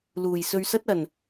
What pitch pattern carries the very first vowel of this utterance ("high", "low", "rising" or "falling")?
low